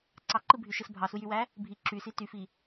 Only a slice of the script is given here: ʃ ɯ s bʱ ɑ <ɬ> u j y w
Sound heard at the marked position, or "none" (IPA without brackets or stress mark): s